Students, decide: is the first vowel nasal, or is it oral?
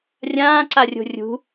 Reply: nasal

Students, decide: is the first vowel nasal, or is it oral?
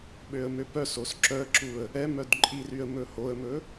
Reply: oral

